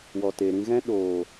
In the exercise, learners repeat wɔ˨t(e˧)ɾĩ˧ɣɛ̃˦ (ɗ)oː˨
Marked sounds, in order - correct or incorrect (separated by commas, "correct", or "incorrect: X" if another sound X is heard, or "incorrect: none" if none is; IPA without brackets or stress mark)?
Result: incorrect: e˨, correct